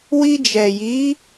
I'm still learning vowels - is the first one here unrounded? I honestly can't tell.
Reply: yes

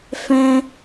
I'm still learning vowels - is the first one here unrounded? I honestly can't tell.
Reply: yes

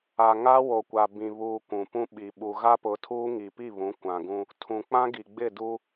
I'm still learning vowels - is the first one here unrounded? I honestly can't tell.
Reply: yes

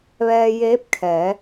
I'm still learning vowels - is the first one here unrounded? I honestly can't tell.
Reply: yes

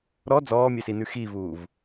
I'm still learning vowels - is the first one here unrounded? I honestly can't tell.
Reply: no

